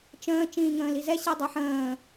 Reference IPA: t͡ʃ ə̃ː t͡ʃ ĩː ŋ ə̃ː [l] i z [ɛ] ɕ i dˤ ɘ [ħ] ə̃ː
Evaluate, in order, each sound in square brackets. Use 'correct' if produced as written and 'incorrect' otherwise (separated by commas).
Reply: correct, correct, correct